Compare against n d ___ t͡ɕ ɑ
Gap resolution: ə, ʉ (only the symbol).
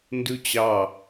ʉ